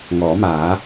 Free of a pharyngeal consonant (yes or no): yes